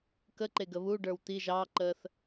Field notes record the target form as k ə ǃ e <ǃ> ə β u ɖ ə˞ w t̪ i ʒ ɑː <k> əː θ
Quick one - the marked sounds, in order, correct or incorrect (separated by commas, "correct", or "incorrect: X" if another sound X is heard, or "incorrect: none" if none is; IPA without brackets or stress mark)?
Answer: incorrect: ɡ, incorrect: ǃ